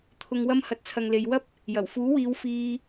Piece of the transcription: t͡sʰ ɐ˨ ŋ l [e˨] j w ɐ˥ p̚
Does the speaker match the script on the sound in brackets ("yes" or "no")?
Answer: yes